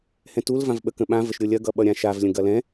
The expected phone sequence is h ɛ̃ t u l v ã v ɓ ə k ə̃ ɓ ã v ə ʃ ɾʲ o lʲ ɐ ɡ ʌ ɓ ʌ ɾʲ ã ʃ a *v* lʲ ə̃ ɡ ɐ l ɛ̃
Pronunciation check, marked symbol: correct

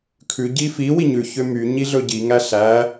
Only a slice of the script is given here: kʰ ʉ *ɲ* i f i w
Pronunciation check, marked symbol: incorrect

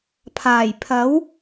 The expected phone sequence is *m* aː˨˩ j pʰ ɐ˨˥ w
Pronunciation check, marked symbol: incorrect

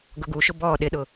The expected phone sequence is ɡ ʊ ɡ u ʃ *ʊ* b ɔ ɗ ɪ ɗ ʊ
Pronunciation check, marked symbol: correct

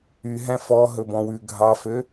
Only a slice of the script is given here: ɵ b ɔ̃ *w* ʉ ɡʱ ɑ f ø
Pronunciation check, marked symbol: correct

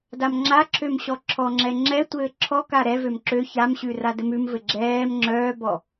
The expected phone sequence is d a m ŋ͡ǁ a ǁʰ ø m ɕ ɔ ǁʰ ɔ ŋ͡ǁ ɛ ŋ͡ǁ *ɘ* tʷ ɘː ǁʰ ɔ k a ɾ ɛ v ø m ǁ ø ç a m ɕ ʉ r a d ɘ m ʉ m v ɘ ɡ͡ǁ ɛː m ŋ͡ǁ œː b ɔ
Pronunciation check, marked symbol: incorrect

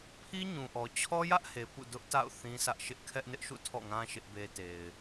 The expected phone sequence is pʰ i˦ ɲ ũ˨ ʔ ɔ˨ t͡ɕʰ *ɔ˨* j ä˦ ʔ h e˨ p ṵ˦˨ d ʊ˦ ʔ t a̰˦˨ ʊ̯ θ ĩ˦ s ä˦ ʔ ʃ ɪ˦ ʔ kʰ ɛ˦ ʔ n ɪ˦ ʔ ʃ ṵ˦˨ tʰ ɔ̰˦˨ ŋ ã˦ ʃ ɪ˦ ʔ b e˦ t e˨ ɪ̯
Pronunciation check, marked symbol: incorrect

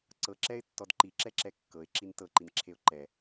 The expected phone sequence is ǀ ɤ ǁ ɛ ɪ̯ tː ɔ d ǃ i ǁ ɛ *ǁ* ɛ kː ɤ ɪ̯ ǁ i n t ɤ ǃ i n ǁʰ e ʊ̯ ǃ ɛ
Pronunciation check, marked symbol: correct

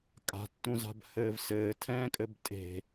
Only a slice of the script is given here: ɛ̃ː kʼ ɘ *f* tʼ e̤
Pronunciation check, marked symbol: incorrect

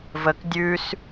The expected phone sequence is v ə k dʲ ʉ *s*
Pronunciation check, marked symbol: correct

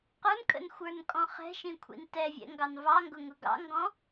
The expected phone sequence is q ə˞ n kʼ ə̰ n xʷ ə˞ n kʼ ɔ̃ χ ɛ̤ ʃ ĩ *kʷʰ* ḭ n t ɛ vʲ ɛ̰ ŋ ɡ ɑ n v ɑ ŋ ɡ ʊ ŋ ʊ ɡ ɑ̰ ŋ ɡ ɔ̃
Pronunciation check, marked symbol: correct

